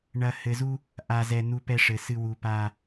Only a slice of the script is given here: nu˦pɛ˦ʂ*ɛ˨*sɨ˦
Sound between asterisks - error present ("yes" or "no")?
yes